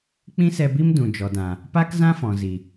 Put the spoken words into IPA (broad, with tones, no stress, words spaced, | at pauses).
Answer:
k͡pĩ˦sɛ˧bi˦m dũ˨d͡ʒɔ˨dã˨ | pa˦kzã˦ fɔ̃˨zi˨